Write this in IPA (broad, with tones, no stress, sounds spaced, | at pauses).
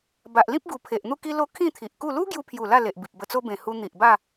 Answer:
b a˨ ʔ l ĩ˦ p̚ ɡ u˨˩ pʰ e˨ ʔ n̪ u˥˧ k i˦ l o˦ kʰ ĩ˥˧ t̪ʰ i˨ ʔ k u˥˧ l u˦ ɡ j u˧ pʰ j u˨˩ l a˥˧ l e˨ ʔ b i˨ p̚ b ə˧ t͡s o˦ b ẽ˨˩ h u˧ n̪ i˨ ʔ b a˥˧